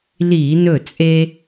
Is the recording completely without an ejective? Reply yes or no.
no